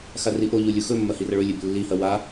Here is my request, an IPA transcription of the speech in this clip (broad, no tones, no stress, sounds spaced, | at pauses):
x a r i ʔ o ʎ u lʲ u x ɵ mː ɐ h i r ɐ ɭ ɵ lʲ e b lː i h ɐ w a